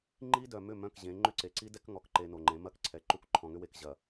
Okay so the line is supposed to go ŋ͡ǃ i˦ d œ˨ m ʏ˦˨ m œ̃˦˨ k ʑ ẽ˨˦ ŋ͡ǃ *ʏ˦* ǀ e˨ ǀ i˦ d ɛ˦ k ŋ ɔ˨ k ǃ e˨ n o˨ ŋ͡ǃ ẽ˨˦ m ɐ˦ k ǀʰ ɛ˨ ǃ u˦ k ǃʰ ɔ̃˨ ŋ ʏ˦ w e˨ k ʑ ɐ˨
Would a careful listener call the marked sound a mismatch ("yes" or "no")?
yes